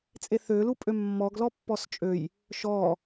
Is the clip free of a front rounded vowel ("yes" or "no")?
no